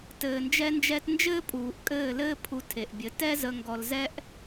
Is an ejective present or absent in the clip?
present